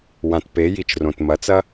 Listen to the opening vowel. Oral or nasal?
nasal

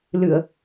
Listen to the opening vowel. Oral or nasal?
oral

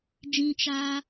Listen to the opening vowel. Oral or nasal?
nasal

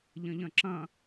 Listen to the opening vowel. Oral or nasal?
nasal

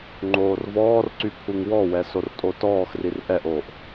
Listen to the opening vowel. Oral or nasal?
oral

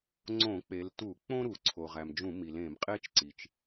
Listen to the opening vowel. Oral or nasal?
nasal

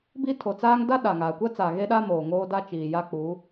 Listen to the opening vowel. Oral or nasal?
oral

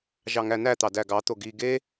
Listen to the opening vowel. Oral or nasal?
oral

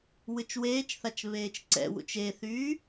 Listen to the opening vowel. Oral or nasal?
oral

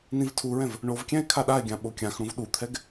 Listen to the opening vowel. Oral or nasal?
nasal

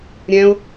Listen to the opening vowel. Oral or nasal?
nasal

